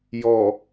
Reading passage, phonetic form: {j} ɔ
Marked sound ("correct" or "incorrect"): correct